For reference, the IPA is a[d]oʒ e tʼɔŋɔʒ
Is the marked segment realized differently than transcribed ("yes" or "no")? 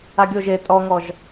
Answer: yes